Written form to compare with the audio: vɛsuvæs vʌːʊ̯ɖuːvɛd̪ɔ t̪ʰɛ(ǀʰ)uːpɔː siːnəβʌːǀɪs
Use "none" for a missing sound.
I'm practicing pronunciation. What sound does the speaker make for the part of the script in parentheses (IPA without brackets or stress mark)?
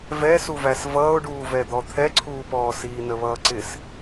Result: ǀʰ